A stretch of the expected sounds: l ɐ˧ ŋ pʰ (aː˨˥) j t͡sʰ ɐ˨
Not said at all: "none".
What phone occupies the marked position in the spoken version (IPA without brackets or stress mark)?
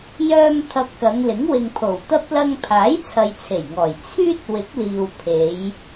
aː˨˥